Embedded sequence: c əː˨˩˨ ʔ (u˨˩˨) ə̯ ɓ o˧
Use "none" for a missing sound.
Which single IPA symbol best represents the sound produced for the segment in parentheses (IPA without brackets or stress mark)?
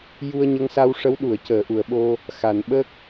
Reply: u˨˩˨